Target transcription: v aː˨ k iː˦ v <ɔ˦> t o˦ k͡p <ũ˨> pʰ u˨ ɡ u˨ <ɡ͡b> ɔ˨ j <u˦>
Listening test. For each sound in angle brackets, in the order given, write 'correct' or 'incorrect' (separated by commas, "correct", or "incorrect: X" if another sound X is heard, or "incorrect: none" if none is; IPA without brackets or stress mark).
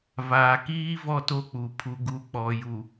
correct, incorrect: u˨, incorrect: k͡p, incorrect: u˨